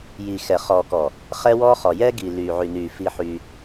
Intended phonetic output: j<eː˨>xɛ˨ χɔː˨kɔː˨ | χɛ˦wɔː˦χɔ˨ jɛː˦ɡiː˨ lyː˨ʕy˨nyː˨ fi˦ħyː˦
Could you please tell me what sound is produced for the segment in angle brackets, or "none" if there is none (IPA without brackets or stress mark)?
iː˨